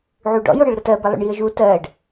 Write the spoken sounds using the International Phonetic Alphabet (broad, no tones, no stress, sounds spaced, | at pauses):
ʕ u ɖ ɔ̰ j o ɽ ɨ ɭ ɾ ə t ɜ b ɛ lˠ ṵ ɳ j i ə̯ ʒ u t ɜ ɖ